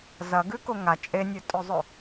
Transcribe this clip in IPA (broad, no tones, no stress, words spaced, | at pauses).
zɐɡʉ koŋa t͡ʃʼenʲɵtʼɵzˤɵ